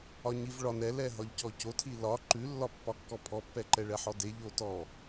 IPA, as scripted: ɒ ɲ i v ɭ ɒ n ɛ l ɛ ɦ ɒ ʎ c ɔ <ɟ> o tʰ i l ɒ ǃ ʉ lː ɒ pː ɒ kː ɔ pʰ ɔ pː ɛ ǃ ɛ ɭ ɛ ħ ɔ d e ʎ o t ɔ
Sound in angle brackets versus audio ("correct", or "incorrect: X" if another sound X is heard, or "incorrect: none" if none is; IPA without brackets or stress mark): incorrect: c